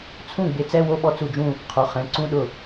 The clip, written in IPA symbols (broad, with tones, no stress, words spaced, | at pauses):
t͡sʰũ˥˩ ɡ͡bɪ˨˦t͡sɛ˧˥˧ wo˥˧ɓɔ˥˩t͡su˥˩d͡ʒũ˥˧ | qʰo˩˧˩χɛ̃˩˧˩ ǀũ˧˥˧ɗʊ˥˩